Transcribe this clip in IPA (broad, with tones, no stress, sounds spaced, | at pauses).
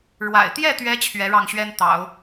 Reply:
ɻ w a̰˨˩ ɪ̯ t̪ j ɛ˥˩ t̪ ɥ ɛ˧˥ t͡ɕʰ ɥ ɛ˧˥ ɻ ɑ˥˩ ŋ ɕ ɥ ɛ˥ n t̪ ɑ̰˨˩˦ ʊ̯